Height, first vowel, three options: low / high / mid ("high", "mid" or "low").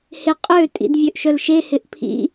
high